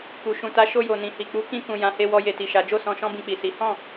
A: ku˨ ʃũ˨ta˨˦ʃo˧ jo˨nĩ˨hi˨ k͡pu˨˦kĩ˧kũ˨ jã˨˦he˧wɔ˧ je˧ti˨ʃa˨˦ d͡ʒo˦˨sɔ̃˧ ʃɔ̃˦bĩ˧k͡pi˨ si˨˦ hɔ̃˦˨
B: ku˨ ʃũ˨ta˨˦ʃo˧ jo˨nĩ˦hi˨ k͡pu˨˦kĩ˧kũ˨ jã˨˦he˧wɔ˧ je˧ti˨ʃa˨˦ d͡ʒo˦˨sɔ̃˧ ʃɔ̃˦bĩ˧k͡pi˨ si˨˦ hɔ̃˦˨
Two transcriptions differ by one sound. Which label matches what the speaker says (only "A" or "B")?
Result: A